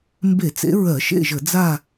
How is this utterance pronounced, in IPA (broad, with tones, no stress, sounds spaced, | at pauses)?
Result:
m b e˧˩˧ t͡s ḛ˨˦ ɹ ɜ˧˩˧ ʃ ḛ˦˨ ʒ ə˧˩˧ d͡z a˦˨